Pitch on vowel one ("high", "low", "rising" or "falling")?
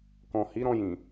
low